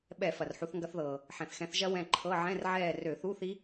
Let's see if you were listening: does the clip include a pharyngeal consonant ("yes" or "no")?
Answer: yes